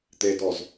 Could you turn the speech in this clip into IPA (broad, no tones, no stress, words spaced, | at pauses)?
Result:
t̪edɔz